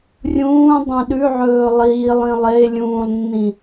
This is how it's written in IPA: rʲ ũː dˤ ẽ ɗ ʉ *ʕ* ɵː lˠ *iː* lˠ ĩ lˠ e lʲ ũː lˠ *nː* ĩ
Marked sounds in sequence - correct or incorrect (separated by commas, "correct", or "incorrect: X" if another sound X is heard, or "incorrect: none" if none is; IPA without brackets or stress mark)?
correct, correct, correct